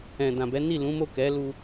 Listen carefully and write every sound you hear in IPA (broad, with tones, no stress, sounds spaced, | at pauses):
ɛ̃˨ d ã˨ b ɛ˨˦ n i˦˨ l ũ˨˦ m o˦˨ k ɛ˨˦ l u˧